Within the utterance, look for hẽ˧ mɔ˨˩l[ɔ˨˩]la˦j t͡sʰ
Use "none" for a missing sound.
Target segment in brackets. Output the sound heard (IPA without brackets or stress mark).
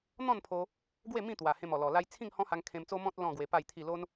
ɔ˨˩